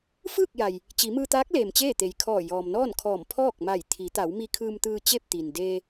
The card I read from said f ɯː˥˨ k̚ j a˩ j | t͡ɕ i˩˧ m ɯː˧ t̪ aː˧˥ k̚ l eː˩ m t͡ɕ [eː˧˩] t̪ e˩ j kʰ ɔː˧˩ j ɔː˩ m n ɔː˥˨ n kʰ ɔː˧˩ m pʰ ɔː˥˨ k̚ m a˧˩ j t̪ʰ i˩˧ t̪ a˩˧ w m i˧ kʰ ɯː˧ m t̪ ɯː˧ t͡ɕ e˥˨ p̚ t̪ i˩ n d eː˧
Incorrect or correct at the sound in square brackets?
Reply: incorrect: eː˥˨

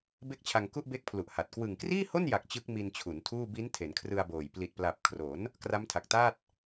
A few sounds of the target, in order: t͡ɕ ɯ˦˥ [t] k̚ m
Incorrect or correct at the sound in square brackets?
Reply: incorrect: none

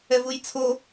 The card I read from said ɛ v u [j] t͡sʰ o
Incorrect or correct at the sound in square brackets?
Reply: correct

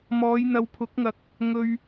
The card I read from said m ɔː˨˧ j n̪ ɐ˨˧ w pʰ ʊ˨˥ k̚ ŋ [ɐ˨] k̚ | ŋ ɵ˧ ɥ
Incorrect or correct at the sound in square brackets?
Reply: correct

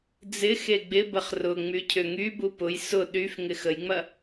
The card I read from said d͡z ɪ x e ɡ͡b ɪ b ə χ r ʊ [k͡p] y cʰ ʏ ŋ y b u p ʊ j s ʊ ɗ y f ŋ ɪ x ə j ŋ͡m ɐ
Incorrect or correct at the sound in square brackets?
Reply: incorrect: ŋ͡m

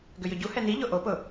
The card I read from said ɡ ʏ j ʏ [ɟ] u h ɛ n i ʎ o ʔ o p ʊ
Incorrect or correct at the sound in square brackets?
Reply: correct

